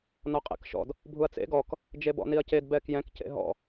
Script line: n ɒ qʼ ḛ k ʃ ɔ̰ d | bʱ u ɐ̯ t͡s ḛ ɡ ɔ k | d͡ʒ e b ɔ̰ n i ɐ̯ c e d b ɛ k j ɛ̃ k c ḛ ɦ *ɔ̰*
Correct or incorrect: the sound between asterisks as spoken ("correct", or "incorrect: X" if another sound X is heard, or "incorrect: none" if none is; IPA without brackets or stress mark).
correct